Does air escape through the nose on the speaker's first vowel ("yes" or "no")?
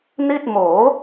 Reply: no